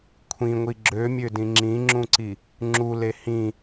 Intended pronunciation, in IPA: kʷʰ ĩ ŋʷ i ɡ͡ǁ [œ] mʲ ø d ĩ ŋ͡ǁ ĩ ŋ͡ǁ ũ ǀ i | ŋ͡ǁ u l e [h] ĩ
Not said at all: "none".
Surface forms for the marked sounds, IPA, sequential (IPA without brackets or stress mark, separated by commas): ø, h